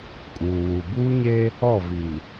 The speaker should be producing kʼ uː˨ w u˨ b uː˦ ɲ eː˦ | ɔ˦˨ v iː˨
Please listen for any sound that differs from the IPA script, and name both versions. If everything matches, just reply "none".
none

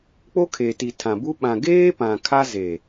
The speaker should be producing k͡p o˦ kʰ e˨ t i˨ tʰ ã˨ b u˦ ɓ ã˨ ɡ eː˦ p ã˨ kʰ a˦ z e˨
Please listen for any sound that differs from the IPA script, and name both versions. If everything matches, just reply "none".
none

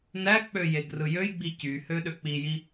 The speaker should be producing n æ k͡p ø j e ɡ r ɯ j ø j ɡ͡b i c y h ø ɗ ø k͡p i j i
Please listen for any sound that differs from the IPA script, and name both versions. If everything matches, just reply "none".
none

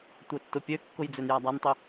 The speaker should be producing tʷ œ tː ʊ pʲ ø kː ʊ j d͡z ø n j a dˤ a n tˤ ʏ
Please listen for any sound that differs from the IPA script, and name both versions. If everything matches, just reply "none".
none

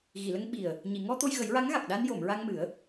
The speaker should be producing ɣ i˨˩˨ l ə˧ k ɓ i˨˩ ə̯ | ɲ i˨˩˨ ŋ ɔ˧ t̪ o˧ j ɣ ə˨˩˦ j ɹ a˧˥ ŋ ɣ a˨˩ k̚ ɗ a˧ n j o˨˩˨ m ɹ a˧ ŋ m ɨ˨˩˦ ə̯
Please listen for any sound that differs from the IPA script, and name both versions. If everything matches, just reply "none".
k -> ŋ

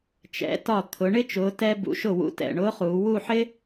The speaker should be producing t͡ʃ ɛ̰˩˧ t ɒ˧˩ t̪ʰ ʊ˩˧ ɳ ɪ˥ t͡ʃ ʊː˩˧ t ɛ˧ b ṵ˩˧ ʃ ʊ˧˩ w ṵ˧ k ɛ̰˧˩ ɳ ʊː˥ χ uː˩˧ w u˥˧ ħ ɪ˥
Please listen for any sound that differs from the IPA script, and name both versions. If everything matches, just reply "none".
k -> t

